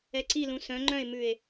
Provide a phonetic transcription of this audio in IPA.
ɛ ǀ i l ũ s œ̃ ŋ͡ǃ œ̃ e̯ m ʉ e̯

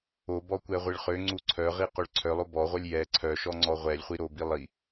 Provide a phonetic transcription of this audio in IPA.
o b ɔ kʷ ɛ ʁʷ i ɭ χ ø ŋ͡ǀ u ǀʰ œ ʁ i q ø ɭ ǀʰ œ lˠ o b ɔ ʁʷ œ lʲ j ɛ ǀʰ œ ʃ ɔ ŋ͡ǀ ɔ ʁʷ ɛ lʲ χʷ i ɾ o b i lˠ i

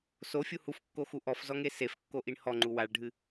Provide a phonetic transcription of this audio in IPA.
s o fʲ u h u f kː o x u ʔ ɔ f z ɔ ŋ e s e f kː o ʔ i ɳ h ɔ ŋ͡ǃ u w a ɭ ɖʱ ɨ

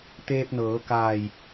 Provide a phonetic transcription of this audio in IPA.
t̪ eː˧ p̚ n ɤː˩˧ k aː˧˩ j

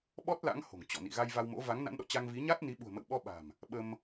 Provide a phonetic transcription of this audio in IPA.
ɓ ɔ˦˥ t̚ l a̰˧˥ ŋ h o̤˨˩ ŋ t͡ɕ ɔ̰˧˨ n ḭ˧˨ ɣ a˧ j v a˧ w m o̰˧˥ v a˨˦ ŋ n a̰˧˥ n ɗ ɔ̰˧˨ t͡ɕ a˧ ŋ v i˨˦ ɲ a˦˥ t̚ n i˨˦ ɓ ṳ˨˩ ə̯ m ə̰˧˨ w ɓ ɔ˧ ɓ a̤˨˩ m | ɓ ə˧ m

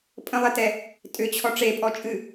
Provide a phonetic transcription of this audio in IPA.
pʼ ə̃ lˠ e t ɛ | tʼ ʏ t͡ɕʰ ɔ ʈ͡ʂ e pʼ ɔ t͡ʃʼ ɨ

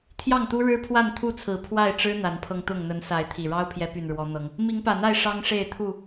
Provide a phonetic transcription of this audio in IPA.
t̪ʰ j ɑ˥˨ ŋ t̪ u˦ ɻ ɻ̩˦ pʰ w a˥˨ n t̪ʰ u˥˨ t͡sʰ ɹ̩˨˩ pʰ w a˥˨ ɪ̯ ʈ͡ʂ ɻ̩˦ n̪ a˨˦ n pʰ ɤ˧ ŋ t̪ ʊ˥˨ ŋ n̪ ə˨˦ n s a˨˦ ɪ̯ t̪ʰ i˨˩ ɻ ɑ˦ ʊ̯ pʰ j ɛ˨˦ p y˨˩ n ɻ w ɔ˨˦ n̪ ɤ˨˦ ŋ | m i˨˦ ŋ p ä˨˩ n̪ a˥˨ ɪ̯ ʂ ɑ˦ ŋ ʂ e˥˨ ɪ̯ t̪ʰ u˥˨

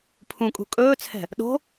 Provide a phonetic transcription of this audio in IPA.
pʰ ũ kʼ ṳ kʼ ɵː t͡sʰ ɛ̤ | ɗ o̤

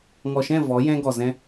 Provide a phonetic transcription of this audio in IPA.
ŋ ɔ˨ ʃ ɛ̃˦˨ v ɔ˨˦ j ɛ̃˦ ɡ ɔ˨ z ɛ̃˧

